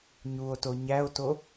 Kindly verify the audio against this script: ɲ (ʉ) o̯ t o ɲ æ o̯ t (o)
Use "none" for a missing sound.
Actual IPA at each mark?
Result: u, o

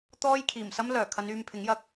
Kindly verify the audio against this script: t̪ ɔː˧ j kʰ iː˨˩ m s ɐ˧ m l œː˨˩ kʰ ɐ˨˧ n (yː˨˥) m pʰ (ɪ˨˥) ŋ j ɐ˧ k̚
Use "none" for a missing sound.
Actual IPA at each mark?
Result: yː˨, ɪ˨˥

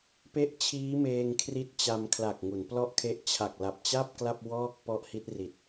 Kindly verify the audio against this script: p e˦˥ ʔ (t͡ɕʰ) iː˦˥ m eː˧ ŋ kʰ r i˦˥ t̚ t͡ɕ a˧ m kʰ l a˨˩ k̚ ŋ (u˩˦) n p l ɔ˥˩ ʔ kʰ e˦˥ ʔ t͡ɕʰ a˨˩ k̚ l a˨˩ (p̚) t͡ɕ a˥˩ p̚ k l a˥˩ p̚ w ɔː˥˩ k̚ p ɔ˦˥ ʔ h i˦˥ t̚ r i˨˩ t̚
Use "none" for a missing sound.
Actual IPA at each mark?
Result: t͡ɕʰ, u˩˦, p̚

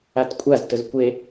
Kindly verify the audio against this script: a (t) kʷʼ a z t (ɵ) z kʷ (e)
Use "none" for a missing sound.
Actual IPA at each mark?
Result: t, ɵ, e

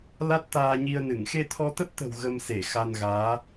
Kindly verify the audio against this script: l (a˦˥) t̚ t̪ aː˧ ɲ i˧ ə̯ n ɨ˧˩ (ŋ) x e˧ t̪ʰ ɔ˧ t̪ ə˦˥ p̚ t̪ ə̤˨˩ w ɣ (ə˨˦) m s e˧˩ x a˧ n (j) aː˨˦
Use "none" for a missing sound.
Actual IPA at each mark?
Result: a˦˥, ŋ, ə˧, ɣ

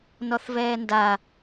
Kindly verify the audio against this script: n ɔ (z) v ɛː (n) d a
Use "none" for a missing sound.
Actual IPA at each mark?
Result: θ, n

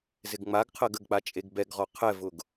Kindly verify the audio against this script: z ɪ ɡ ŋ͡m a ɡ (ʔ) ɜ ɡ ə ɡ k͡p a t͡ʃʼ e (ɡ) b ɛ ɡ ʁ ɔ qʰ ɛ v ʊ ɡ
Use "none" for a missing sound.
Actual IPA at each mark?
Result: qʰ, ɡ

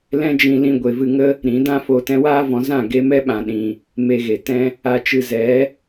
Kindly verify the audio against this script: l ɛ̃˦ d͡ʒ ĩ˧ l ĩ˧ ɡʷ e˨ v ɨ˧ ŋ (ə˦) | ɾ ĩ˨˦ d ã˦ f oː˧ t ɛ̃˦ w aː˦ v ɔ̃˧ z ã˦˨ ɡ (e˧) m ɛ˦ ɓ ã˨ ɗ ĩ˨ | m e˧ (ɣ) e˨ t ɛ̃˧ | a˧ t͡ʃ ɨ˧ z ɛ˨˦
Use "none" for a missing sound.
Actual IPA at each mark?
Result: ə˦, e˧, ɣ

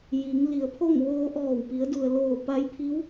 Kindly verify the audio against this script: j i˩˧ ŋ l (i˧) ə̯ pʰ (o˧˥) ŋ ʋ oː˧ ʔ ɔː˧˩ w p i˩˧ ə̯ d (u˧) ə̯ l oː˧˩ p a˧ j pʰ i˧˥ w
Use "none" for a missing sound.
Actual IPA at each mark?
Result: i˩˧, o˥˨, u˩

